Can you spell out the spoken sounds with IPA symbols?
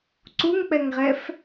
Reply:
ǀuŋk͡pɛŋʁɛf

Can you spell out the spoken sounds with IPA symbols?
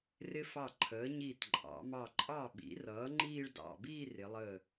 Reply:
rɪ˧fɑ˧˩ ǃʰəː˩˧ ɲiː˧˩tǃʼɑ̰˩˧ mɑ˧˩ ǃʼɑ˧˩ɓḭ˩˧rʌː˩˧ ŋ͡ǃiː˥˧ɭdɑ̰˧˩ biː˥˧rɪ˩˧lˠəː˧˩

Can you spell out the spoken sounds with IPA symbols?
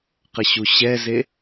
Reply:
qəɕuɕɛze

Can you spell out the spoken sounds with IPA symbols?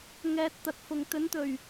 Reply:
ŋɛː˧t̚t̪ɐ˨t̚fʊ˨ŋ t̪ɵ˨˧nt̪ɵ˨˩ɥ

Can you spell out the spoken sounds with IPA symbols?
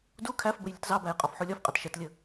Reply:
du kʰæfbəj lʲʊtzɑbæj qʼɒfħulʲɒfqʼɜt ʃɛtlʲə

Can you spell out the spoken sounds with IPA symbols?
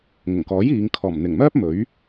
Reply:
ŋʊ˨˩ŋkɔː˨˥j iː˨˧ŋ kʰɔː˨˩mn̪ɪ˨˩ŋmœː˥p̚ mɵ˨˥ɥ

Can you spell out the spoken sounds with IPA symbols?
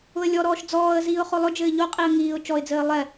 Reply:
ʊə̯lʲɔɾɔːʃ d͡zɔːə̯ziːʊ̯ χolˠʊd͡ʒɘː ʎoqʼiə̯ ŋiːʊ̯ t͡ʃɔɪ̯d͡zɘː lˠɛ

